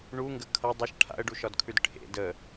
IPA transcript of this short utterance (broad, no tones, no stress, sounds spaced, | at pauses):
ɳ u ŋ ɡ ə kʰ ʌ dˤ ʌ ʃ ʈʰ a̰ ə̯ ɖ u ʃ ɒ d kʰ ʉ d ʈʰ ḛ d ə